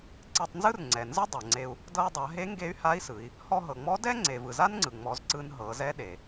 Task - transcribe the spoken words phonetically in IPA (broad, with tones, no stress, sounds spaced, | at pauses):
ǀ e˧ tˤ n z ɯ˥ r ŋ͡ǀ ɛ˩ n z ɯ˥ dˤ ɤ˩ ŋ͡ǀ e˧ u̯ | d ɤ˧ i̯ dˤ a˩˧ ɦ e˧˥ ŋ ɡ e˧˥ y̯ h a˧˥ i̯ s ɯ˩˧ i̯ | h ɔ˧ ɦ ɤ˩ ŋ͡m ɔ˧˥ d ɛ˥ ŋ͡ǀ e˩ v ɯ˩ z a˥ n ŋ͡ǀ ɯ˩ ŋ͡m ɔ˩˧ z ǀ ɯ˧ n ɦ ɤ˩˧ z ɛ˧˥ ɗ e˩